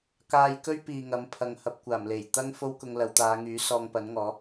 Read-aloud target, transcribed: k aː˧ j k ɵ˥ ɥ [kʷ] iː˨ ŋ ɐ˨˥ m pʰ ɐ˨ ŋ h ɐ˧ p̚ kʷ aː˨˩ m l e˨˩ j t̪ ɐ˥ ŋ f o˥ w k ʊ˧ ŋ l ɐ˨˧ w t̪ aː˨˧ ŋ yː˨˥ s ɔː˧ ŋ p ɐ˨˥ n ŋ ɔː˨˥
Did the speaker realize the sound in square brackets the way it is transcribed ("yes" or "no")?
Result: no